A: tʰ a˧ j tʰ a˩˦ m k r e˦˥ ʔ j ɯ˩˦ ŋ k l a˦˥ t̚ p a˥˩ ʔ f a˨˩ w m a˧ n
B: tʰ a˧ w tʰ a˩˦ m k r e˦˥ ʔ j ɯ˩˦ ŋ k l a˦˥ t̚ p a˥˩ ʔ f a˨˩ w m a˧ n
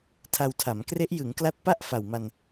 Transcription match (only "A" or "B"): B